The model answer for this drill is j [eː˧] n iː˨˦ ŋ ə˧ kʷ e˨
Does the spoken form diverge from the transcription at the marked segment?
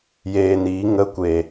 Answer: no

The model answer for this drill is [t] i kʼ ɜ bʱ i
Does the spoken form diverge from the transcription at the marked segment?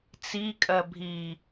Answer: yes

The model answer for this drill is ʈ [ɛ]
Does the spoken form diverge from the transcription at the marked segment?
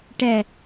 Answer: no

